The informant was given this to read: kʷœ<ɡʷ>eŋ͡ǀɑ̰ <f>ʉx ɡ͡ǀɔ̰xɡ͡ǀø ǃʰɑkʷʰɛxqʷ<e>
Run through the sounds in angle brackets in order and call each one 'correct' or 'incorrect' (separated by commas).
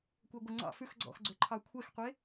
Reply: correct, correct, correct